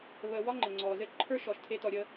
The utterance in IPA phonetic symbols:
β əː˨ w ɒ˥ ŋ͡ǃ ɘ˩ ŋ͡ǀ ɔː˩ z ɘ˦ ǃʰ ə˞˥ ʃ ɔ˩ ʃ tʰ e˦ t ɔ˨ ɾʲ ə˦

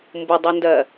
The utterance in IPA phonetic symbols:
m b u dˤ u n d ɜ

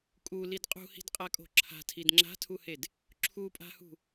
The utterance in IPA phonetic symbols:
kʼ u l i d qʼ ṳ h i̤ d qʼ a kʼ o̤ ǁʰ a̤ tʰ i d ŋ͡ǁ a̤ tʰ u h e d | ǁʰ u pʼ a̤ h ṳ

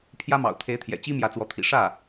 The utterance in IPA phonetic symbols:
pʰ j ä˥ m ɑ̰˨˩ ʊ̯ t̪ʰ e˧˥ ɪ̯ t̪ʰ j ɛ̰˨˩ t͡ɕ i˥ m j ä˧˥ t͡s w ɔ˧˥ t̪ʰ ḭ˨˩ ʂ ä˥˩

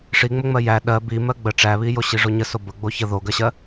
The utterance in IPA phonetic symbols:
ʂ i ŋ͡m ə ŋ͡m ɜ j æ ɗ ɜ b i m ɜ ɡ͡b ə ʈ͡ʂ æ β i j o ɕ i ʐ o ɲ ə s o b ə ɡ͡b o ç ə ð o ɡ ɜ ɕ ɜ

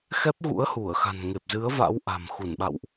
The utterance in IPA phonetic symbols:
x ɛ˦˥ p̚ ɣ ṵ˧˥ ə̯ h u˧˩ ə̯ x a̤˨˩ n ŋ e˨˩ p̚ z ɨ˨˦ ə̯ v a̰˧˥ w ʔ a̤˨˩ m x u˧˩ n ɓ a̰˧˨ w ʔ

